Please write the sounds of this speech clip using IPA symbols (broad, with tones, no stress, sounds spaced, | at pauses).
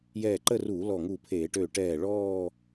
j ɛː˧˩ ǃ ə˥˧ r uː˧˩˧ l ɔ˧˩ ŋ u˧˩ pʰ eː˧˩˧ ʈ øː˧˩ ʈ ɛː˧˩ ɭ ɔː˥˧